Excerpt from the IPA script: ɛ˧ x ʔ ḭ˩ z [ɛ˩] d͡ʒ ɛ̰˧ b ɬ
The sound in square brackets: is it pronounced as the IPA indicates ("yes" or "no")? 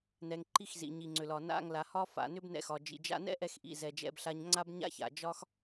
yes